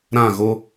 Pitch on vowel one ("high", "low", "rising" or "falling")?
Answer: falling